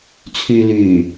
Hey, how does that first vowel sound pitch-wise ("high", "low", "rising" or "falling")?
low